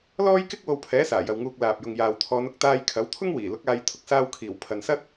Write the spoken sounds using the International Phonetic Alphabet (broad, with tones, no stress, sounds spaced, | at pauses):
l ɔː˥ j k ɪ˥ k̚ w o˧ w pʰ ɛː˨˥ s aː˨˩ j ɐ˨ w ŋ uː˧ k̚ l aː˨ p̚ j ʊ˨ ŋ j aː˨ w t̪ʰ ɔː˨˧ n ʊ˧ k̚ t̪ aː˧ j kʰ ɐ˨˥ w t̪ʰ ʊ˥ ŋ w iː˨˩ l ʊ˨˥ k̚ aː˨˧ j t̪ʰ ʊ˨ k̚ s aː˧ w kʰ iː˨˩ w pʰ ɐ˨ n s ɐ˥ t̚